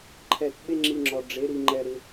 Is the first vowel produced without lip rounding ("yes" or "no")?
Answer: yes